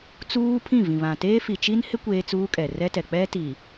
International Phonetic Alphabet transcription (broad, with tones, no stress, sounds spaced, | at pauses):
t͡s uː˦ pʰ ĩ˦˨ v ĩ˨ β ã˨ t eː˦ f i˨ t͡ʃ i˦ n h ɪ˦ kʷ eː˦ t͡s uː˦ kʼ ɛ˨ r ɛ˦ t ɛ˨ k͡p ɛ˦ t i˨